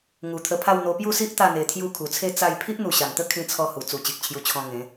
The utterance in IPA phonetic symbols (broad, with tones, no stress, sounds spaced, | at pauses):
ŋ u˨˩ t̪ʰ ə˧ pʰ a˥˧ w n̪ o˧ p j u˥˧ s i˦ ʔ t̪ a˥˧ n̪ e˧ t̪ʰ j u˥˧ kʰ u˨˩ t͡sʰ e˥˧ t͡s a˥˧ j pʰ i˦ ʔ n̪ u˨˩ ɕ a˨˩ n t̪ ə˦ kʰ ĩ˦ t͡sʰ ɔ˦ h u˨˩ t͡s u˨˩ t͡ɕ i˨ k̚ t͡ɕʰ j u˧ t͡ɕʰ ɔ̃˧ ŋ ẽ˨˦